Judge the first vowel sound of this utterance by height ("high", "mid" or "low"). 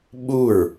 high